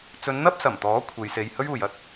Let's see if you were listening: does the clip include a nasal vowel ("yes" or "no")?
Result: no